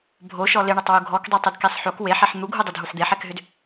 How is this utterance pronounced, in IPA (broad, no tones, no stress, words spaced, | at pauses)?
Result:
bʱoʃɔ lɪɳʏtˤwu ɡʱɔkdˤøtˤʏdkesˤ ħok weħɛħ n̪uɡʱudˤɪdʱuħ d̪eħɛkɦʏd